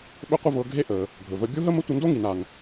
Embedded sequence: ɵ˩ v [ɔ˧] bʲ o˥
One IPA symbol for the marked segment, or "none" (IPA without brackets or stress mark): ə˧